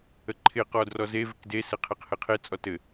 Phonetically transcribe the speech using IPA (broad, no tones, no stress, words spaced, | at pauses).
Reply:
əǃʰɪ qɔdrɔze vɪkde sɘqʰeqhɘqʰe t͡sʼɔtɘ